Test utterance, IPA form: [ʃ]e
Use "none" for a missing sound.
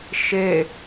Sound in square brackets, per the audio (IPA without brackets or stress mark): ʃ